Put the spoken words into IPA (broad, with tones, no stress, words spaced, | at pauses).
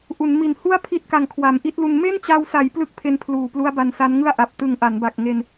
ʔu˩˦nmi˨˩n hu˥˩a̯pʰi˦˥t̚ka˨˩ŋkʰwa˩˦m ʔi˦˥t̚lu˧n me˥˩nt͡ɕa˧wsa˩˦j plɯ˥˩k̚pʰe˧npʰluː˨˩plu˦˥a̯ ba˧nsa˦˥nŋɯ˥˩a̯ʔa˨˩p̚ tɯ˨˩ŋ ʔa˩˦nba˨˩k̚ŋe˧n